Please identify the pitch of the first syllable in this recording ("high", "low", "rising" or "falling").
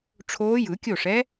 rising